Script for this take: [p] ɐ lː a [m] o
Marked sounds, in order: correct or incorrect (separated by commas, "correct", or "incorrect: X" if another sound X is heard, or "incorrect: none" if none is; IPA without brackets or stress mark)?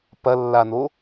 correct, incorrect: n